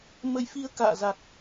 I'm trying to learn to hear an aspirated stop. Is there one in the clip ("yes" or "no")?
no